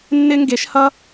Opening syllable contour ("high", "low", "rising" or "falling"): high